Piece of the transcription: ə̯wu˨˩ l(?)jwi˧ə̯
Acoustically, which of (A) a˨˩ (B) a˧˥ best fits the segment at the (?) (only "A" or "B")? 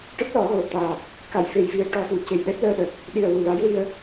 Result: B